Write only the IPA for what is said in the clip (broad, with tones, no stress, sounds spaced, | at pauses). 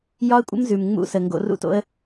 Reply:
j ɒ˦ ə̯ kʷʼ ə̰˦ m z ʉ˨ m ŋ͡m ṵ˦ s ə˨ ŋ ɡ o̰˧ r ṵ˦ t o̰˦ ə̯